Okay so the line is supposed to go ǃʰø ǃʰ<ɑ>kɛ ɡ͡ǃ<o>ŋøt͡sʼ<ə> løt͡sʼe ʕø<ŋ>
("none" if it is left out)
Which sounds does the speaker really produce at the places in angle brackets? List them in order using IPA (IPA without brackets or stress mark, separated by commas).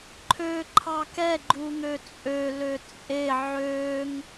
ɑ, u, ø, ŋ